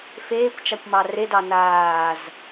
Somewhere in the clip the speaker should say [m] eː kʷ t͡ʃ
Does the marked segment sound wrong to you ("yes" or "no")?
yes